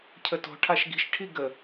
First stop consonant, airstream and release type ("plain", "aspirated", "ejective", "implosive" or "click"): aspirated